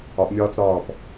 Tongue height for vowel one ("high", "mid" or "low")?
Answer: low